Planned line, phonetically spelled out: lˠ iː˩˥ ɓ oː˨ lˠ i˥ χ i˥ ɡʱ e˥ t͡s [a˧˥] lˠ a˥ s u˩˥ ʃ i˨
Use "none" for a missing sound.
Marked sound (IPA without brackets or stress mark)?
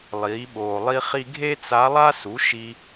a˧˥